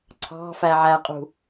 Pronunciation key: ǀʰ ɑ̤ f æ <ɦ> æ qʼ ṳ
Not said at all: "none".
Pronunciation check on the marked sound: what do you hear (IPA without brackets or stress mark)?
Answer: ʕ